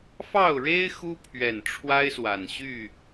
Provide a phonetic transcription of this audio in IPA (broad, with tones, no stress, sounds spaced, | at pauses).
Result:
f ɑ˥˨ ʊ̯ ɻ e˦ ɪ̯ x u˦ pʰ ɥ ɛ˨˩ n ʈ͡ʂʰ w a˦ ɪ̯ s w a˨˩ n ɕ y˥˨